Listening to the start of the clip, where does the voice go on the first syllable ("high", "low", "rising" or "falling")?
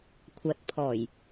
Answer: low